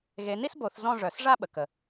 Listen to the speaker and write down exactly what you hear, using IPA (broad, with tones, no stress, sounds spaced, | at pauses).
ɣ e˨˦ n i˥ s b o˧˩˧ θ z ɔ̃˥˧ ʐ œ˧˩˧ s ʐ a˥ ɓ ə˩ k ə˩